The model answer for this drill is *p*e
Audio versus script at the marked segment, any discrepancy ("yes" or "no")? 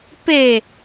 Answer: no